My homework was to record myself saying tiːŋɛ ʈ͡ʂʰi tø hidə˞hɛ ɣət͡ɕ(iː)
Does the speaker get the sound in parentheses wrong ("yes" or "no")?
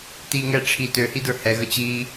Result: no